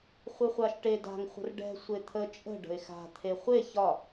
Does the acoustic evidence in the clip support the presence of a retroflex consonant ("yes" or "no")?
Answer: yes